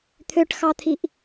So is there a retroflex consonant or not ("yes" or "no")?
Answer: yes